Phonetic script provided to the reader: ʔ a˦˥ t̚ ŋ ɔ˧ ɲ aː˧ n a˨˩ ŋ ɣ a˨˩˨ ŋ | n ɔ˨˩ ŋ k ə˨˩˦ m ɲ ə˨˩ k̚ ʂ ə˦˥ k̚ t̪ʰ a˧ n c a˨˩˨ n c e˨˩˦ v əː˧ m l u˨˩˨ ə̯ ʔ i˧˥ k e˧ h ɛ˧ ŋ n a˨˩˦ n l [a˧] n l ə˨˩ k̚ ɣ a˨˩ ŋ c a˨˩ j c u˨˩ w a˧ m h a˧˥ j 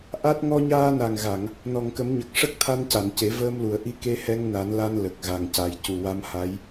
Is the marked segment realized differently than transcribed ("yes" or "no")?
no